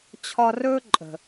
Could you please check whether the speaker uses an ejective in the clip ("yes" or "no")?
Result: yes